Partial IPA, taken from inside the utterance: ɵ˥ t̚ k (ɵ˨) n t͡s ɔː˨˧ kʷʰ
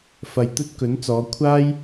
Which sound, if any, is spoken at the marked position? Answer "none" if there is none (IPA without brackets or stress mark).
ɵ˨˥